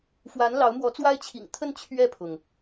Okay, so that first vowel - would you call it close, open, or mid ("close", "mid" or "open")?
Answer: open